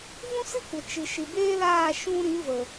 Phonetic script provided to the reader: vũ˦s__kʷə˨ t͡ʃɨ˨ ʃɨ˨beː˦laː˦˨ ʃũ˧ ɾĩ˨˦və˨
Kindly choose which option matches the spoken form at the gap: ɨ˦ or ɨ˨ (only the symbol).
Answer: ɨ˦